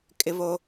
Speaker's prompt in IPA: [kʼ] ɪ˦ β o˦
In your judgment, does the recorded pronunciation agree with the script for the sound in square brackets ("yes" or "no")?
yes